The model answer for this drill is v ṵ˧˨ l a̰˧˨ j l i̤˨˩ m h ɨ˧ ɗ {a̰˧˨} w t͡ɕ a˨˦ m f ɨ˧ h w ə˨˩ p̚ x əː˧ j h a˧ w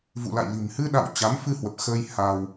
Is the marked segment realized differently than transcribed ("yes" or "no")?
no